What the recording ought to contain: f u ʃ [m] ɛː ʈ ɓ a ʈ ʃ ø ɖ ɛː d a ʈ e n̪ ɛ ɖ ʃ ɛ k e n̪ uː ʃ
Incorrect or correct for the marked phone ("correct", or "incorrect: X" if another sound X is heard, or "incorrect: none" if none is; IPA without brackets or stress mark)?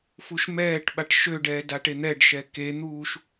correct